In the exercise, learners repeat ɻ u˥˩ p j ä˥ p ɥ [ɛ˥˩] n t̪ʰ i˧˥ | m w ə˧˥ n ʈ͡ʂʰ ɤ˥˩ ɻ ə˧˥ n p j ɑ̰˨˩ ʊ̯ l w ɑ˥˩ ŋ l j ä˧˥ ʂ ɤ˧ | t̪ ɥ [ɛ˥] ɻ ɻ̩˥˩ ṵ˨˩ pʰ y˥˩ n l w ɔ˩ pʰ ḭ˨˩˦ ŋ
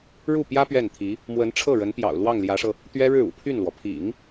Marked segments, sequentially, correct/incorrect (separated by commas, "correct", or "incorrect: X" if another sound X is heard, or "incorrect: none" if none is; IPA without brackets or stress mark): correct, correct